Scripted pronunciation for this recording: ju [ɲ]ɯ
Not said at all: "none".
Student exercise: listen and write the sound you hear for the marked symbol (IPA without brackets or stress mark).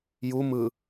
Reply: m